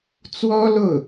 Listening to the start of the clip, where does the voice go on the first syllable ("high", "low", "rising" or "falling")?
high